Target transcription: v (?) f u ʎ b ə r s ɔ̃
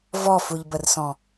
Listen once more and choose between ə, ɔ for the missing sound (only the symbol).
ɔ